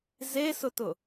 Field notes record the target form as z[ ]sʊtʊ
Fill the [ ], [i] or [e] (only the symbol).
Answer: e